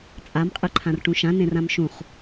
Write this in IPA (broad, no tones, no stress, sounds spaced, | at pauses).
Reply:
t͡sʼ a m qʼ ɯ ǃʰ ã r ʈ ũ ʃ ã n ẽ r ã m ʃ ũ χ